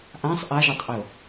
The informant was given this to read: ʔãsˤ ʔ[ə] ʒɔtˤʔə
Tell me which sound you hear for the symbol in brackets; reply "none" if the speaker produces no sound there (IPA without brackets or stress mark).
a